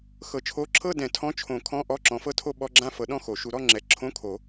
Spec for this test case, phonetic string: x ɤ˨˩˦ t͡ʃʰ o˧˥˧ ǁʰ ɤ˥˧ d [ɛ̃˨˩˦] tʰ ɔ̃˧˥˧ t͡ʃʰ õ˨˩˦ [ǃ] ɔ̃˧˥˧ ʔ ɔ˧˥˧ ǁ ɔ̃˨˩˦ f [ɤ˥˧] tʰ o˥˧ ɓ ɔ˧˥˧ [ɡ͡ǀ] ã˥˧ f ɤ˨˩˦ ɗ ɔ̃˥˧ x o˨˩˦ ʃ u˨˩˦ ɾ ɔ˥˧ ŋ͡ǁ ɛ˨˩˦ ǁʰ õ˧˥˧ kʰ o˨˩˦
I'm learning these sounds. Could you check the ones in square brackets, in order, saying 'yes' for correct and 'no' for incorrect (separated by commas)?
yes, no, yes, no